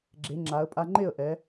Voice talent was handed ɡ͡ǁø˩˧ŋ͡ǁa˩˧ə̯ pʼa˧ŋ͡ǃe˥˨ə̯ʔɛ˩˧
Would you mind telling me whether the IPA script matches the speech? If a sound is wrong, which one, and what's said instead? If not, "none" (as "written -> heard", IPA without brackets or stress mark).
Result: ø˩˧ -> e˩˧